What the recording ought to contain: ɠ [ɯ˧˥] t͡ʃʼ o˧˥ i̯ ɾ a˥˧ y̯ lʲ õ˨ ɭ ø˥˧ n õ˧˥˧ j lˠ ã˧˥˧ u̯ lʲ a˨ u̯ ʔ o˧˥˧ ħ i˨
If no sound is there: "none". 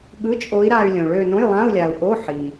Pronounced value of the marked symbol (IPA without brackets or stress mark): ɯ˧˥˧